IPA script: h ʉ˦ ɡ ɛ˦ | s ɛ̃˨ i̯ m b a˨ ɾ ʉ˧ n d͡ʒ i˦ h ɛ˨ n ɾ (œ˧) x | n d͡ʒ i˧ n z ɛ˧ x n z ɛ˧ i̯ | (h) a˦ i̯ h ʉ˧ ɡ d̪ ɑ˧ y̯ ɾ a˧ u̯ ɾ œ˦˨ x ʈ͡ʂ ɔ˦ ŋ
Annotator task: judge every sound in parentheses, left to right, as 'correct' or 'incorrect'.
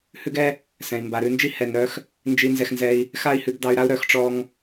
correct, incorrect: x

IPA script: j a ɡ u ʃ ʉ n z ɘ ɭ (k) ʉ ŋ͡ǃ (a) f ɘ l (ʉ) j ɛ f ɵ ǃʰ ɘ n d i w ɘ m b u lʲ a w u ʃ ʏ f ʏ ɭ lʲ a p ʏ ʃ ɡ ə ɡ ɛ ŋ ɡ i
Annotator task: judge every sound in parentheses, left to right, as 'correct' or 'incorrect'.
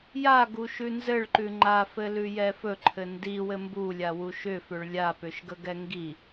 incorrect: ǃ, correct, correct

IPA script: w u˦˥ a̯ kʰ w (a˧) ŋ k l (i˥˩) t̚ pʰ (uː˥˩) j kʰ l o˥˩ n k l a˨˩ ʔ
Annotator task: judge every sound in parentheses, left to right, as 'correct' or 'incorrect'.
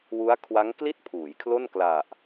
incorrect: a˦˥, correct, incorrect: uː˩˦

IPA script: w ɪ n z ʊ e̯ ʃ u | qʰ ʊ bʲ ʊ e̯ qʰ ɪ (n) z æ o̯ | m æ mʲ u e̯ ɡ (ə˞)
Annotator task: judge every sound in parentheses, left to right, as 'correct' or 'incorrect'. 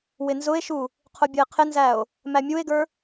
correct, correct

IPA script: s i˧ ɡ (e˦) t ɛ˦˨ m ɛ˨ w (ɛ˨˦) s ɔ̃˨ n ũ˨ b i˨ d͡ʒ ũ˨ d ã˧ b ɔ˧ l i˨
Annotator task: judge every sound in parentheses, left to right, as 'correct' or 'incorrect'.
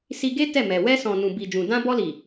correct, incorrect: ɛ˧

